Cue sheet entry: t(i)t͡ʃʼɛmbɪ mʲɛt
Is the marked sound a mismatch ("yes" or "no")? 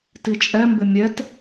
no